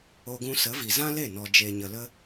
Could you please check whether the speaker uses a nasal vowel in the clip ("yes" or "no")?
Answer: yes